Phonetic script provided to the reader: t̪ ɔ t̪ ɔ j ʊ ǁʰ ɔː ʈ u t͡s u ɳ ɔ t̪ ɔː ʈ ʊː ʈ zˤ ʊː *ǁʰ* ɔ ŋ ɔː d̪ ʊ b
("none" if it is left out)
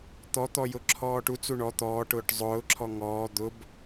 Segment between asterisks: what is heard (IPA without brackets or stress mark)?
ǁʰ